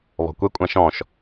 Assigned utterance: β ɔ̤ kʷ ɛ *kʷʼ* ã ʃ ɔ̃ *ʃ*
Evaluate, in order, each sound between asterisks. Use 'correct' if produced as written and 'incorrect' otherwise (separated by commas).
correct, correct